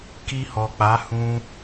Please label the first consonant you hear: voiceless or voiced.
voiceless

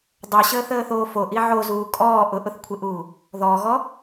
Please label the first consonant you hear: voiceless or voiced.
voiced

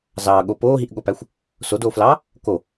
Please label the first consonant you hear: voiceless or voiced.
voiced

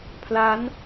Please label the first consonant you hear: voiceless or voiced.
voiceless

